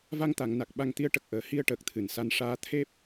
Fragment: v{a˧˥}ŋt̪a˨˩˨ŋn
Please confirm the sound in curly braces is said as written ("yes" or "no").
no